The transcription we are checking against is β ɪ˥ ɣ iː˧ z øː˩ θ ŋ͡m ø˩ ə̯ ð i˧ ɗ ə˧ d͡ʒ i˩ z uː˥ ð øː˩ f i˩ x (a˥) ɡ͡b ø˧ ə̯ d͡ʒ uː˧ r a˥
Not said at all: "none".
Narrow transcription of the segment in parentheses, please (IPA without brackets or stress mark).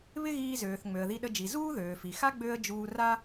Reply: a˥